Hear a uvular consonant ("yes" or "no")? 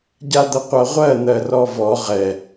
yes